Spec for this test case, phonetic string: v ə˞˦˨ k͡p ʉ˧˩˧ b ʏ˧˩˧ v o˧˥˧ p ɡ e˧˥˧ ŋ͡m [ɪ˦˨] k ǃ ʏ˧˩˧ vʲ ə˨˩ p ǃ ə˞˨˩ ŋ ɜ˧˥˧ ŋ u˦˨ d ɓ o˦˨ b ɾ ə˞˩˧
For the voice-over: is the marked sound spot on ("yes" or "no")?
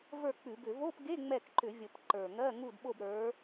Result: no